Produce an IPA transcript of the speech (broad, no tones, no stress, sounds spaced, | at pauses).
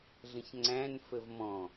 ɮ ə̃ ç ŋ͡ǀ æ̃ n f ə v m ɔ̃